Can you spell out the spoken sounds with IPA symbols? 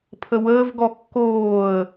pʰ ə w əː v ɡ ɔ kː oː ə̯

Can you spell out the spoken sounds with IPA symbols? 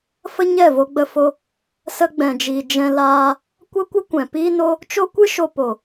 f ə˦ ɲ ɛ˦˨ v o˧ ɡ͡b ə˧ f o˧ | s ə˧ ɡ͡b ɛ̃˨ d͡ʒ iː˨ d͡ʒ ɛ̃˧ l aː˧ | kʷ ə˦ kʷ ə˦ kʷ ɛ̃˨ p iː˦ n o˦ | t͡ʃ o˦ kʷ ɨ˦ ʃ o˧ p o˨

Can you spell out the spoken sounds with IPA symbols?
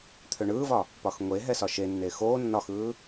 t̪ʰ ø ɳ ɯː v ɒ | p ɒ x ŋʷ e ɦ ɛ s ɒ ʃ e nː eː x oː nː ɒ x ɯː

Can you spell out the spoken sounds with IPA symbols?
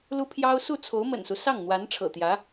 l u˥ pʰ j ɑ˥ ʊ̯ s u˥˩ t͡sʰ o˧˥ ʊ̯ m ə̰˨˩ n s u˦ s ɑ˥˩ ŋ n̪ w a˧˥ n ʈ͡ʂʰ ɤ̰˨˩ t̪ j ä˧˥

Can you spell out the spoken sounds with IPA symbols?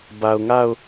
b a˨ ʊ̯ ŋ a˦˨ ʊ̯

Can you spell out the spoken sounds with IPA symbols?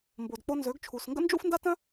m b o˨ d k͡p o˧ n z ø˨˦ ɡ t͡ʃʰ u˨ s ŋ ɡ ə̰˦ n d͡ʒ ṵ˦ f n d a˦ t œ̃˦

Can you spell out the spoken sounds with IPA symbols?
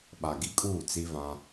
ɓ a˨ ɡ i˦ kʼ uː˦˨ t͡s i˦ v ã˦

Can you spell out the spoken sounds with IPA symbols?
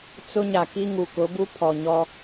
t͡s ʊ˦ ɲ a˨ k i˦ ŋ u˨ k ʊ˨˦ b u˦ pʰ ɔ˨ ɲ ɔ˦

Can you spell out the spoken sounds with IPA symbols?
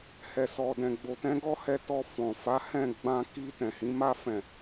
h ɛ˨ s ɔ˨ d ɛ̃˨ ɡ͡b o˨ t ɛ̃˨˦ ɡ ɔ˦ h ɛ˧ t ɔ˧ f ɔ̃˨ f a˨˦ h ɛ̃˦˨ ɡ͡b ã˧ k i˧ t ɛ̃˨ h ĩ˨˦ m a˦˨ f ɛ̃˨

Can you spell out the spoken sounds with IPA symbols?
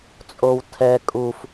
t͡sʼ o w tʰ ɛ kʼ u f

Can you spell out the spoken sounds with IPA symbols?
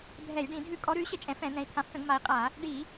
bʱ ɛ˧˩˧ j ɖ ĩ˧˩˧ dʱ ʉ˧˩˧ kʼ ɔ˩˧ ɾ ʉ˩˧ y̯ ɕ ə˧˩˧ t͡ʃʼ ɛ̃˩˧ f ɛ̃˧˩˧ n̪ ɛ̃˩˧ i̯ t̪ʰ ã˩˧ f t ə̃˧˩˧ ɡ m a˩˧ i̯ qʼ a˧˩˧ | ɖ i˧˩˧

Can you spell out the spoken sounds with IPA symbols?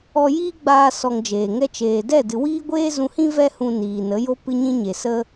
ɔ˧ j iː˦ ɡ͡b aː˧ s ɔ˧ ŋ d͡ʒ eː˨ ŋ ɛ˦ t͡ʃ eː˨ d ɛ˦˨ d ɨ˨ w iː˦ ɡʷ eː˦ z ũ˧ h ĩ˦ v ɛ˦ h ũ˧ n iː˨ n ə˨˦ j o˦ p ɨ˧ ɲ ĩ˧ ɲ e˨ s ə˦

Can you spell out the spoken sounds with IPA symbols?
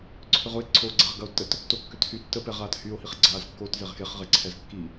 ǀʰ ʏ ʁ ʊ e̯ ǀʰ o ɡ͡ǀ ɛ ʁ ɡ ɐ o̯ tː ə t | t o kː ʏ t h y tː ə p ɛ ʁ aː t h y o̯ h i χ ɡ͡ǀ aː z kː o t z e ʁ x e χ ʁ e ǀʰ ɛ z kː i

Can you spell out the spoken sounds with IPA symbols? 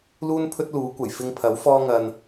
l uː˥ n pʰ ɵ˥ t̚ l uː˨˥ kʷ ɐ˨˩ j f ɪ˧ ŋ pʰ ɐ˨˥ w f ɔː˧ ŋ ɐ˨ n

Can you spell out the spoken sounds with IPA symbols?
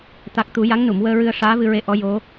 t̪ a˨˩ k̚ t̪ u˨˩˦ j a˧˥ ŋ n u˨˩˨ m w əː˧ ɹ ɨ˧ ə̯ ʂ aː˧˥ v ɨ˧ ɹ e˧˥ ʔ ɔ˧˥ j o˧˥

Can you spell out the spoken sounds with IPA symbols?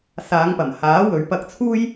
s aː˨˧ ŋ p ɐ˨˩ m h aː˨˥ w ɵ˨˥ ɥ p ɐ˧ k̚ t͡sʰ uː˥ j

